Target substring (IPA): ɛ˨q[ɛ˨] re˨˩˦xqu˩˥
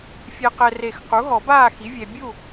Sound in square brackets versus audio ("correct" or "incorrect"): correct